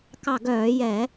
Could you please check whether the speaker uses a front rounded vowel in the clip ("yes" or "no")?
yes